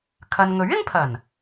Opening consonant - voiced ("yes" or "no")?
no